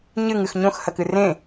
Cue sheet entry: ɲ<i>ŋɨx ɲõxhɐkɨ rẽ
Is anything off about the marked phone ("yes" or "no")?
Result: yes